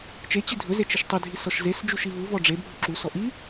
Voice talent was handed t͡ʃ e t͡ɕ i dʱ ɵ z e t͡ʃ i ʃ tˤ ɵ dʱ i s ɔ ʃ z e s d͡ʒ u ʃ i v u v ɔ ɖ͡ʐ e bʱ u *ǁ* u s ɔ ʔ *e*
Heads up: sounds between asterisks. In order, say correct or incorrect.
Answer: correct, incorrect

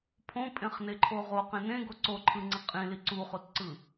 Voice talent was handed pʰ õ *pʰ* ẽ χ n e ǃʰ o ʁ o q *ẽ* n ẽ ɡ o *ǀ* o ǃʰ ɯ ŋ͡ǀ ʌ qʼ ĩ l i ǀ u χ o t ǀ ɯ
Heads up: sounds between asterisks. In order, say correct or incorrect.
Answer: incorrect, correct, correct

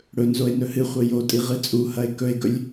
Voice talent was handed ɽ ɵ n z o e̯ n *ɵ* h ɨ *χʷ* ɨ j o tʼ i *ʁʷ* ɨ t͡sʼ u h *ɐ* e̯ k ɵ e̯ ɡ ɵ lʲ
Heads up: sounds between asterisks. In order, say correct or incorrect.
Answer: correct, correct, incorrect, correct

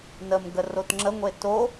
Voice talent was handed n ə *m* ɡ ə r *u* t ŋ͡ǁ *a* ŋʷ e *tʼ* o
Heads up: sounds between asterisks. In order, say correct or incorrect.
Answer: correct, incorrect, incorrect, incorrect

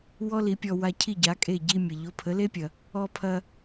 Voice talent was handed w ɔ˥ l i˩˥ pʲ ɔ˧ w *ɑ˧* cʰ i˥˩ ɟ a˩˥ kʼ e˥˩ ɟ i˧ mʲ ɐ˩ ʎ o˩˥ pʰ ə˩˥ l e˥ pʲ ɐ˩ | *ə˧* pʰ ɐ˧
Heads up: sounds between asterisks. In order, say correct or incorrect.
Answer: incorrect, incorrect

